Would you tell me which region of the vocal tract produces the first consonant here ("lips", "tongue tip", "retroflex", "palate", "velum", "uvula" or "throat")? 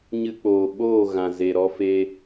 palate